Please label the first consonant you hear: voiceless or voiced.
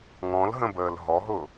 voiced